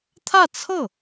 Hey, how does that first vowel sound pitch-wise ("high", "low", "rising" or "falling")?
falling